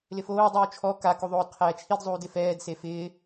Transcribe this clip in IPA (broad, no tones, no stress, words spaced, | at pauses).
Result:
lɪfoː dˤuːt͡ʃʰɔ ka kuðˤoːdqʰɛːt͡ʃʰid zˤuːdɪfɛːd sefɪː